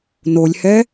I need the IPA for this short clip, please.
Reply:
nolʲhɛ

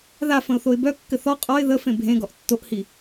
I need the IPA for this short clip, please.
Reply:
ðafə̃ʊ̯θoɪ̯ bœkːɘ θɔ qʼɔɪ̯ ðəfẽ bʱẽɡɔʔ tːoʔhi

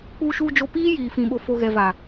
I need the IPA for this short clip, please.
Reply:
k͡puː˨ʃuː˨d͡ʒo˨ piː˦jiː˨fĩ˨ ɓo˨fo˨ɣɛ˨va˨

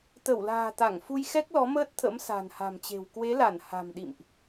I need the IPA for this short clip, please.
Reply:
t̪ə˧˩wla̤ː˨˩t̪a˧˩ŋfu˧j xɛ˦˥k̚lɔ˨˦məː˦˥t̚t̪ʰə̰˧˥m sa̤˨˩nha̤˨˩mt͡ɕe̤˨˩w kwe˨˦la˧˩n ha̤˨˩mɗḭ˧˨mʔ

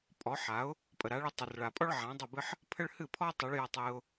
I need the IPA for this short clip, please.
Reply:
pʼɔ˩˥ ħa˩˥ʊ̯ | pʼə˩ɾa˩˥ɭɨ˧ tˤʌ˩rɭa˩pʼɔ˥ɭ ʕã˩˥dˤʌ˥˩bɨ˥ħ | pʰə˥ɭ hɨ˥˩pʰɔ˥ tˤʌ˩˥ɭ jʌ˧tˤɨ˧ʊ̯

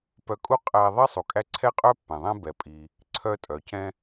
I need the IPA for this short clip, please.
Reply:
pœ˧kʼu˥ qʼæ˧ ðˤi˥ sˤu˩kʼæ˧ ǀʰɛ˥qʼœ˥pːɛ̃˩ ðˤɛ̃˥bɛ˩pʼi˩ | ǀʰœ˧tʼœ˩cɛ̃˧

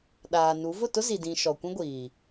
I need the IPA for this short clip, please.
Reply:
ɗaː˨nu˨˦ vʊ˦˨tʊ˦zi˨dĩ˨ ʃɔ˨kʷĩ˦ɡʷiː˨

